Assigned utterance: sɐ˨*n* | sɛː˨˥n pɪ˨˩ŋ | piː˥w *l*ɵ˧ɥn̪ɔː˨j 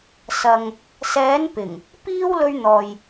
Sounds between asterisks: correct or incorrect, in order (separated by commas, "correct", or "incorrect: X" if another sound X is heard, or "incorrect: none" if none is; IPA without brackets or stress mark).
incorrect: ŋ, correct